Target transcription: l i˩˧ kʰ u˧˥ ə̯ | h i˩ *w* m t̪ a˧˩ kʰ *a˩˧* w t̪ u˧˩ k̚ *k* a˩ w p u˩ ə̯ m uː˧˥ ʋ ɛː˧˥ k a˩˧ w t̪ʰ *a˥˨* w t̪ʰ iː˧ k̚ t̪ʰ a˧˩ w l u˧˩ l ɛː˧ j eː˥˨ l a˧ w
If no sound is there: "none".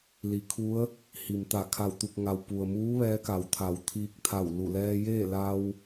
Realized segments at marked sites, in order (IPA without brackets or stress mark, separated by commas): none, a˧˩, ŋ, a˩